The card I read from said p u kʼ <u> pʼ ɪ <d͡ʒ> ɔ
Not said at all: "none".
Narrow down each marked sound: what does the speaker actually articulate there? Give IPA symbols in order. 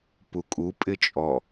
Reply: u, t͡ʃʼ

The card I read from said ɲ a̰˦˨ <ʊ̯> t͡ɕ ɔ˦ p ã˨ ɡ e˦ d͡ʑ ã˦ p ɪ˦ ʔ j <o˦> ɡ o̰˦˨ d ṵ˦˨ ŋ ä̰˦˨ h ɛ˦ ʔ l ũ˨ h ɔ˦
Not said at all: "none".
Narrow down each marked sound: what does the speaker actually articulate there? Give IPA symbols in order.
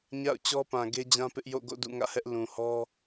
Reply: ʊ̯, o̰˦˨

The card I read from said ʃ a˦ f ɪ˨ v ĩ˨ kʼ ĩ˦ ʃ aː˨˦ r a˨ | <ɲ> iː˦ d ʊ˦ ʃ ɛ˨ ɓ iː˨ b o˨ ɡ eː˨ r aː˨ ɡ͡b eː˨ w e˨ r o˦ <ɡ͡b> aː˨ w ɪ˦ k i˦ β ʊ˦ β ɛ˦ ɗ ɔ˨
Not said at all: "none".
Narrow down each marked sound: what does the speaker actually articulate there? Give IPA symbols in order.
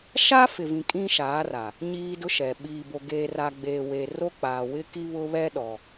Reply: ɲ, k͡p

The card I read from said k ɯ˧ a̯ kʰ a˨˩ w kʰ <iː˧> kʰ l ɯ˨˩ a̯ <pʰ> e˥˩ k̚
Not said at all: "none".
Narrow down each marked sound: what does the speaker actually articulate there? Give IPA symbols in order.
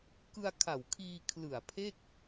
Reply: iː˧, pʰ

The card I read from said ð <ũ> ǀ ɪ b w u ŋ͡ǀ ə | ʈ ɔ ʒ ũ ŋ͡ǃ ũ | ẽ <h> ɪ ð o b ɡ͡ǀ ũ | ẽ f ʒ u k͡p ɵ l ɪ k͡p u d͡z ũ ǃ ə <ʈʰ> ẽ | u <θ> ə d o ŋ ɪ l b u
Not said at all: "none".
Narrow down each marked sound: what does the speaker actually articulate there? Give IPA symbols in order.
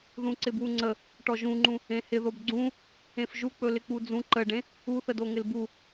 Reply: ũ, h, ɖ, θ

